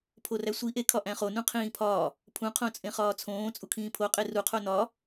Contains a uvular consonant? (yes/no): yes